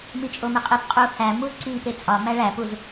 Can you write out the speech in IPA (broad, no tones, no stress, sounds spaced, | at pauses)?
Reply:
m i t͡ʃʼ o m e qʼ e p qʼ u h æ m u z ǀ i p e t͡sʼ ɒ m æ ɭ æ p u z